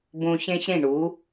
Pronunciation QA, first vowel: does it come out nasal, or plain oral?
nasal